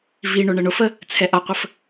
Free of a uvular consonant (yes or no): no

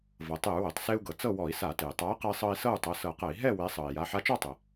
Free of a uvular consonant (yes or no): no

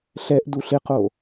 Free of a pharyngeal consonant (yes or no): yes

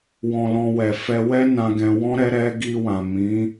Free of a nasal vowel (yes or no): no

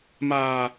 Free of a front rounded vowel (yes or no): yes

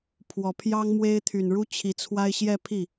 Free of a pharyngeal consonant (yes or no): yes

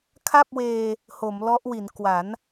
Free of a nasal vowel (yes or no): yes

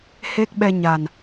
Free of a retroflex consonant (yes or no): yes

